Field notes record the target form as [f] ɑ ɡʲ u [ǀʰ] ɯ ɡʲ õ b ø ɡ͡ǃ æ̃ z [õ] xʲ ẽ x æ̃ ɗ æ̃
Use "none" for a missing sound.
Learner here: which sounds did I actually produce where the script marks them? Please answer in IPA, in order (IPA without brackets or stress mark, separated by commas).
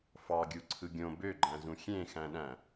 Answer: f, ǀʰ, ũ